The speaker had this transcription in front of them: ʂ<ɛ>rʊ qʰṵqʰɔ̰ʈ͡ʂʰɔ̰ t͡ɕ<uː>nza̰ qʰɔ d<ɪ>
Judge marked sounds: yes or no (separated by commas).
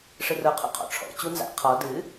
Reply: no, no, no